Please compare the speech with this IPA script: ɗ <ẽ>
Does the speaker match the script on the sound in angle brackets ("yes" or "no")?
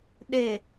no